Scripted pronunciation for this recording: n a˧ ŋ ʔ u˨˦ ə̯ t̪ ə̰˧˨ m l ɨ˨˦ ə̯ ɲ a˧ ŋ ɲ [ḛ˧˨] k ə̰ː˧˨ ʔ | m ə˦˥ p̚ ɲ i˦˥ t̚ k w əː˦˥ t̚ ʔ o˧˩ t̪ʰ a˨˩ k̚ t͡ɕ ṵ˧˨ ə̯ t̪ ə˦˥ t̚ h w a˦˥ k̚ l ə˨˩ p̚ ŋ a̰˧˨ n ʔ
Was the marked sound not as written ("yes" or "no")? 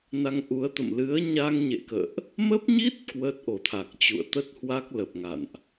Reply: no